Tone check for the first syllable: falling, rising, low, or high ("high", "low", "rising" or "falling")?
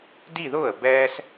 falling